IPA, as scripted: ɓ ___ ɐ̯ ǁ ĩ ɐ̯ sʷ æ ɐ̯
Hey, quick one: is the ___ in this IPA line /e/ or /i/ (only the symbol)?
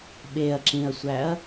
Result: e